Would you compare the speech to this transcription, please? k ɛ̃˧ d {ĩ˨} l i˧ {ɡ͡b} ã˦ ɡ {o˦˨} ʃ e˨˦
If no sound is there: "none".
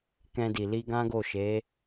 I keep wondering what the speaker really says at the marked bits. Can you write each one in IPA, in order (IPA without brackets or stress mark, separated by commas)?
i˨, ɡ, o˦˨